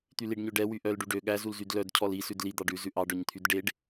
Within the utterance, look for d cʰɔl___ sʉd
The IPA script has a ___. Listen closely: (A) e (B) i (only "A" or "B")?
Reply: B